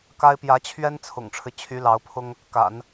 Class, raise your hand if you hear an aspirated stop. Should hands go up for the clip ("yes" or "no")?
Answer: yes